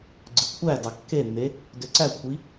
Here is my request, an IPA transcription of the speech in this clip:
ɡ͡ǀɯkʷʰædɑ kːenːe | døǀækʷʰi

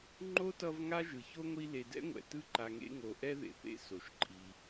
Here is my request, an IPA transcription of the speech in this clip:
ŋ͡ǃo˥tʌ˦v ŋa˥ʒɯ˩ço˥ŋʷi˦ le˨dɛ̰˥ŋʷɛ̰˩ tɯ˦ǃa˨ŋḛ˦ ŋo˨ʔɛ˥ ðḛ˨θḛ˦ so˩ʃǃʼi˨

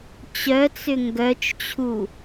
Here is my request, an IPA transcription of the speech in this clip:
t͡ɕœt͡sʏ ŋɡœt͡ʃt͡ɕʰu

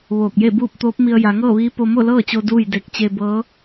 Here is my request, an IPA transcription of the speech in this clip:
ʋoː˧˩k̚je˥˨buː˥˨p̚ t̪oː˧˥p̚mi˧ə̯ ja˩˧ŋɤː˥˨ʋiː˧˥ po˧mo˥˨lɤː˥˨t͡ɕo˧ duː˥˨jde˧k̚ t͡ɕe˧bɤː˧˥

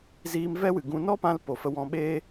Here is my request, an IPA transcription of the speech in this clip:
ziː˧m vɛ˦wɨ˨ ɡũ˧ nɔ˦ pã˦lpo˨fə˧ wɔ̃˧ɓeː˦

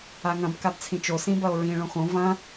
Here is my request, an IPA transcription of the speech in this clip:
aŋɐ̃b kabt͡sʰĩt͡ʃo sĩbɐo̯ɹĩ ɭõxõ vɐ̃

